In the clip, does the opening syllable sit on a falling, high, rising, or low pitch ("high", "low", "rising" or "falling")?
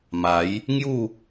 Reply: rising